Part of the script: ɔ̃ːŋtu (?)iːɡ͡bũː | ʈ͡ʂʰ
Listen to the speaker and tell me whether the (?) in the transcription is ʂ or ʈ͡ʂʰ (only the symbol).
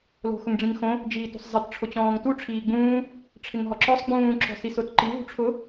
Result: ʈ͡ʂʰ